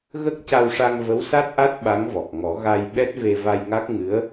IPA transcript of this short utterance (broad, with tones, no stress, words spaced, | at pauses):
ɣə˦˥k̚ca˧wʂa˧ŋ və˧˥wsa˦˥t̚ʔa˦˥t̚ ɓa˧˥ŋvɔ˨˩k̚ŋɔ˨˩˦ ɣa˧j ɓɛ˦˥t̚ve˧va˧jŋa˦˥k̚ ŋɨ˧˥ə̯